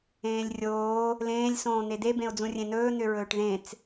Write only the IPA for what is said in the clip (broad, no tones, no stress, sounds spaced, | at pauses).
ẽː lʲ rʲ oː | l ẽː lʲ s õː n̪ e d̪ e b ẽ ʊ̯ d͡z ũ rʲ ẽ n ɵː n̪ ʏ ɹ ɵː ʈ ð ẽ t͡s